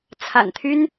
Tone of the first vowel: low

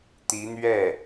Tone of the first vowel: rising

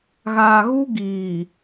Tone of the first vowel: low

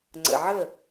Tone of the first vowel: low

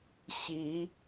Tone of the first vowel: rising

